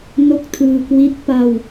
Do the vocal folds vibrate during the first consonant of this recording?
yes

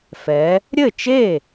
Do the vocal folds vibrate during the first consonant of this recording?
no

